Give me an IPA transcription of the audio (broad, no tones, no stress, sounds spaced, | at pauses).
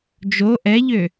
d͡ʒ o ʔ ɛ ʎ ø